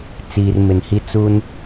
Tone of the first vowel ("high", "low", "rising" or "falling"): low